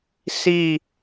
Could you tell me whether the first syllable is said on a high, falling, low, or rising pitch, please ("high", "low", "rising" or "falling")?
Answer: falling